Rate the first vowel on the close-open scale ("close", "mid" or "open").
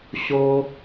mid